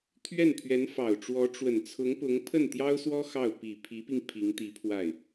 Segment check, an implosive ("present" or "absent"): absent